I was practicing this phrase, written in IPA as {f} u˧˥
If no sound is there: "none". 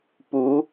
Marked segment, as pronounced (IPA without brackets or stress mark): p